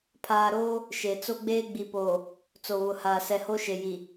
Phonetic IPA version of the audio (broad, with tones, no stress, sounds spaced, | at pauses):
pʰ aː˨ ɾ oː˦ | ʃ e˨ t͡s o˦ ɡ͡b eː˦ ɡ͡b i˨ p oː˨ | t͡s o˨ β ʊ˨ h aː˨ s ɛ˨ h o˦ ʃ e˨ j i˨